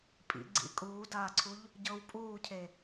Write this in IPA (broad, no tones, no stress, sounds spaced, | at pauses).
pʼ ḭ ɡ͡ǀ ḭ kʼ uː d aː ǀʰ u ʎ | ɟ ɤ w pʼ uː cʰ e